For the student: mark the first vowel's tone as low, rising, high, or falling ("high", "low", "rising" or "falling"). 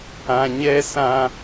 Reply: low